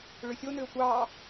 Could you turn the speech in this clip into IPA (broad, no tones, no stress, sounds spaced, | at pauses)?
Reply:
ɭ ʏ sʲ o n ʏː tʷ ɑ